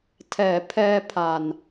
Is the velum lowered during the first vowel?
no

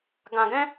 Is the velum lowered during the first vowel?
yes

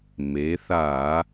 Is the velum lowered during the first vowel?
no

